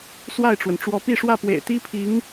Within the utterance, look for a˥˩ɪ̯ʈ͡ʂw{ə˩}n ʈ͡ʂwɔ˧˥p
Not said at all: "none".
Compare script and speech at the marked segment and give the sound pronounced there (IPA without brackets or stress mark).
ə˩